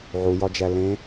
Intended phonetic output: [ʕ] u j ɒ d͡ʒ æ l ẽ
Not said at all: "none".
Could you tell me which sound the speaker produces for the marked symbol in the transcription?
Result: ʕ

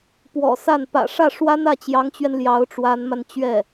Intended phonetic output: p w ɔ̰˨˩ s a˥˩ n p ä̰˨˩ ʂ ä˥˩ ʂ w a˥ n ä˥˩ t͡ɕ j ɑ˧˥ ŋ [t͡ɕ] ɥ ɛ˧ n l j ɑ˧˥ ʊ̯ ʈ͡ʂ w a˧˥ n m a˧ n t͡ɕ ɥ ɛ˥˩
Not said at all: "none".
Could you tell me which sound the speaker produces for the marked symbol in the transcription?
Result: t͡ɕ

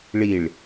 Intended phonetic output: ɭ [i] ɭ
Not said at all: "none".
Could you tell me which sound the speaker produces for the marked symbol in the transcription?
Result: i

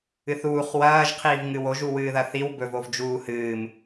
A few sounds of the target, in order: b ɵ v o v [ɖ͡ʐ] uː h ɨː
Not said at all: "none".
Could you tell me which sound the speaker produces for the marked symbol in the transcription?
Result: d͡ʒ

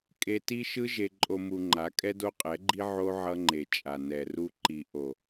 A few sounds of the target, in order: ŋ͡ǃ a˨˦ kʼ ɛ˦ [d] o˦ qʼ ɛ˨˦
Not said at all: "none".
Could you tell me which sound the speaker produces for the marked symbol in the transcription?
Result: d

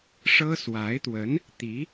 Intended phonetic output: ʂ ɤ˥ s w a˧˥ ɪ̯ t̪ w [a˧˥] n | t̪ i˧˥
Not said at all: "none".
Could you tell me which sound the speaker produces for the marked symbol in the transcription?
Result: ə˧˥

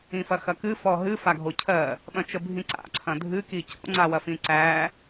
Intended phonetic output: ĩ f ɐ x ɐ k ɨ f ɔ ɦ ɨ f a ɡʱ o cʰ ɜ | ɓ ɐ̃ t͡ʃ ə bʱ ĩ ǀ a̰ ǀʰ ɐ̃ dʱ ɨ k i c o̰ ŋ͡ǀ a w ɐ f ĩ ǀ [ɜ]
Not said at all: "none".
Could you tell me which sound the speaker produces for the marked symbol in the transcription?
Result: æ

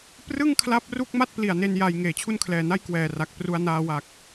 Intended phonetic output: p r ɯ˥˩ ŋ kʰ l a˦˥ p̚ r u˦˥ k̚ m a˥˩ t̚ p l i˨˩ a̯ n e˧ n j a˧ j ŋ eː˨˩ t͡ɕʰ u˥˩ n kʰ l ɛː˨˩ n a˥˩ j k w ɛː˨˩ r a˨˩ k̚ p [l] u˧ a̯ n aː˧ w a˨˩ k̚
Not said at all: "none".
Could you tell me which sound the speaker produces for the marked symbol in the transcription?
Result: r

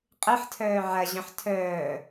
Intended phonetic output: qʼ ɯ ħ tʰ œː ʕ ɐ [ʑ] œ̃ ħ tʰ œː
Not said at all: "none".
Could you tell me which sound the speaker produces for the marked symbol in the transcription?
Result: ʑ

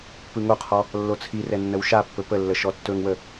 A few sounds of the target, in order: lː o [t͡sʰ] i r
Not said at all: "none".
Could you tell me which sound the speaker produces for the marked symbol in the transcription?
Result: t͡sʰ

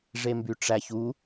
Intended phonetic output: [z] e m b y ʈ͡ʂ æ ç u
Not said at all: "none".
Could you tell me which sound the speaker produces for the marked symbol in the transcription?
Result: ʐ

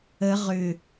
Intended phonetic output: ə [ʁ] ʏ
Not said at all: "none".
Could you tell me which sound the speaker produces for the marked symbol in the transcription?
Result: ʁ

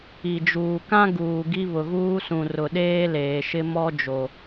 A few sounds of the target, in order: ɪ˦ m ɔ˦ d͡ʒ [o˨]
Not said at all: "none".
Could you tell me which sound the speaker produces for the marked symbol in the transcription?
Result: o˨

